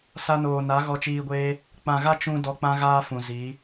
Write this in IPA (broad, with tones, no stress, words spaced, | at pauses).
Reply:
sa˧noː˨na˨˦ ɣɔ˧t͡ʃiː˧ɡʷeː˦ | k͡pã˨ɣa˦ t͡ʃũ˦ dɔ˧k͡pã˦ɣaː˦fũ˨ zi˨˦